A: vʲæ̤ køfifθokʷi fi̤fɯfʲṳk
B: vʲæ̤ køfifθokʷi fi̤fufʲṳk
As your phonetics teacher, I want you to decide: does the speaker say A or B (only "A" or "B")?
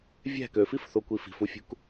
B